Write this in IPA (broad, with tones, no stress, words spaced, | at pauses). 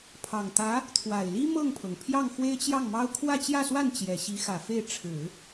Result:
pʰɑ˨˩ŋt̪ä˧˥ | t̪ʰwa˨˩ɪ̯li˥ mɤ˥˩ŋpʰɤ˩ŋ pʰjɑ˥˩ŋxwe˥ɪ̯t͡ɕjɑ˥˩ŋmɑ˥ʊ̯ kʰwä˥˧t͡ɕjä˥˧swa˥˩n t͡ɕjɛ˨˩ɕi˧˥xä˨˩ fe˥˩ɪ̯ ʈ͡ʂʰɻ̩˨˩˦